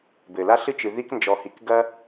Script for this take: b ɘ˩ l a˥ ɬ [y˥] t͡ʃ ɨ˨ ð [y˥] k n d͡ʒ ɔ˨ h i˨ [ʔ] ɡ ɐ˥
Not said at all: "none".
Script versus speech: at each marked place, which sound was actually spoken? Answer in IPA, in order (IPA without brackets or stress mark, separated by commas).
ɨ˥, i˥, k